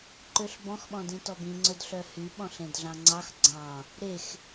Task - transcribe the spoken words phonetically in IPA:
ǃøɬbɔ̃xɓɔ̃dĩ tɔbĩŋ͡ǀɵd ɬœhyɓɔ̃ɬ ẽdɮɑ̃ŋ͡ǀɑx ɡ͡ǀɑ̃ | ɾex

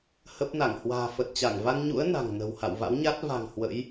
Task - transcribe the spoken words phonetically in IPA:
hə˦˥p̚na˧˩ŋ hwa̤ː˨˩fə˨˩t̚t͡ɕa˧˩ŋ va˧nɲṵ˧˥ə̯ na̤˨˩ŋnə̤˨˩wha̰˧˨w va̰˧˥wɲa˦˥t̚ va̤˨˩ŋ hwə̰˧˥j

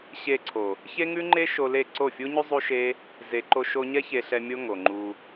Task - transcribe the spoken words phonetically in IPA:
ɕe˧ǀʰo˨ | çe˦ŋʉ˦ŋ͡ǃe˦ʃo˧ le˦˨ ǀo˦˨fʲu˦ɲʉ˦ zˤu˦ʃe˦ | ze˧ǃo˦ʃo˦ ɲɛ˦çe˧ɬɛ˧ mʲo˦ŋo˨ ŋ͡ǃu˧

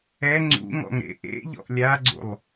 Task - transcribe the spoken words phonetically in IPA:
ɛ ŋ͡ǀṵŋɔ̰ŋ ɾḛʔḛʎɔ̰ʔ lʲaɡ͡ǀṵlˠ

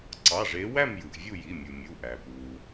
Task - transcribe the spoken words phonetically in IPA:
ǀɑ˩˧˩ʐe˨˦ wæ˥˨mjɯ˩ʔ vʲu˥˨ji˩˧˩mʲu˩mʲu˩˧˩ ʔæ˩ pu˩

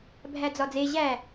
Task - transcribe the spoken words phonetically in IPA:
bʱæd͡zɒd͡ze ʑæ

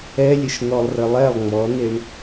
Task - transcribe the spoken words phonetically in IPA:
ɛlʲəʃ n̪ɔlˠrəlˠɛlˠ ŋ͡mɔneɳ

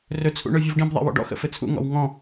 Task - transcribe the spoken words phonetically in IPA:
rɵt͡sʰṵ ɳɵvʲuvɖĩbðˤḛ wɔ̰ɖɔ̰xə̰ fɘt͡sʰṵŋɔ̰w ŋɔ̃

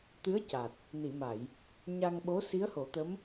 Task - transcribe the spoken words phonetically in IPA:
t̪ɨ˧˥ə̯ca˨˩t̚ | ni˨˩˨ma˨˩˨j | ɲa˧ŋɓo˧˥ si˧˥ə̯ho˨˩˦t̪ə˧˥m

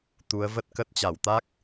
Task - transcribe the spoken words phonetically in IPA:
t̪u˨˦ə̯və˦˥t̚kə˦˥t̚ t͡ɕa˧˩wt̪a˦˥k̚

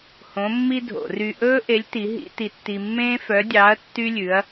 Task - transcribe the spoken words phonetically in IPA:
hõ˧˥mːi˥dʱo̰˧˩˧ ry˧ʔɵː˥ʔe˧˥lʲ ti˧˥ɦḭ˥ ti˧tːi˧mːẽː˥ fœ˧˥dʲɑ˧˥ɐ̯ tːy˥lʲʉ˧˥ɐ̯

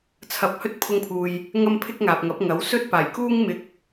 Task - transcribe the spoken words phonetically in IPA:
t͡sʰɐ˧p̚hɵ˥t̚ pʰʊ˧ŋpʰuː˨j | ŋɐ˥mpʰɪ˥k̚ŋaː˨p̚ŋɐ˨˥p̚ ŋɐ˨˥w sɵ˧t̚ paː˨˩jkuː˥ŋ mɪ˧k̚

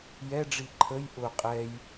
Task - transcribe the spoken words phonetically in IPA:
jɛɖ͡ʐi ǃʰəj ʔʊ qʼɛj

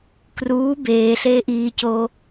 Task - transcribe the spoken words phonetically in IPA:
kruː beː ɬeːʔiːcoː

